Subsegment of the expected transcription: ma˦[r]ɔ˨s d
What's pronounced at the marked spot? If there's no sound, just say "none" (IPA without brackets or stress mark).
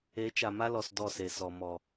l